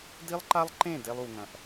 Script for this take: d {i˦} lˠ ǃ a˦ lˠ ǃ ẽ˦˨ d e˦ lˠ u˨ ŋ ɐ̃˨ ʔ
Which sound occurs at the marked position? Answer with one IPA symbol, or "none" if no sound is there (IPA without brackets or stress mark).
i˦